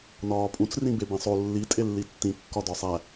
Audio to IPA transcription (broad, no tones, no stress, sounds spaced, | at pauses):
n ɒː pʼ ũ t͡s r ĩ b e b ĩ sˤ o lː i tʼ e lː i tː ĩ kː ɒ d ɒ sˤ æ